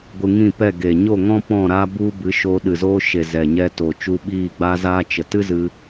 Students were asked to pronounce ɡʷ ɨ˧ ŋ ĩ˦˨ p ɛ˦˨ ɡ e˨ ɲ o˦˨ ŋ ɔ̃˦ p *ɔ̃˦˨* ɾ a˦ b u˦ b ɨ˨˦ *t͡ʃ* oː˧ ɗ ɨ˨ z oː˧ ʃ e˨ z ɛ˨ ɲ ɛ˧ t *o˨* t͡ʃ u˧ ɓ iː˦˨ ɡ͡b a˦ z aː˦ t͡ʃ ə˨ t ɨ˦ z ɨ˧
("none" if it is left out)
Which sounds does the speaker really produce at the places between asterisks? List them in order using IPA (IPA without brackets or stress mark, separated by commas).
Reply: ɔ̃˦˨, ʃ, o˨